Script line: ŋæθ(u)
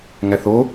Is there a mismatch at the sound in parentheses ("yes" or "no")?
yes